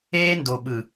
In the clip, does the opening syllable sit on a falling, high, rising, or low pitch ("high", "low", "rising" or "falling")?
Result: high